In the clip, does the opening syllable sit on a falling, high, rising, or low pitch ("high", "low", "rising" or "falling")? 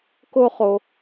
high